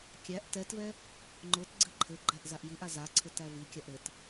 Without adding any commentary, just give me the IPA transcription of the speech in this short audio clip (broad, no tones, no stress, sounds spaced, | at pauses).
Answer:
kʲ æ ʔ t ɛ t v ɛ | ŋ͡ǃ ʊ t ɡ͡ǀ ɘ ǃʰ ɘ ɡ͡ǃ æ ʔ z a ʔ j i ʔ a z a ǀʰ ɘ t æ v i kʲ a ʔ ɾ ɘ t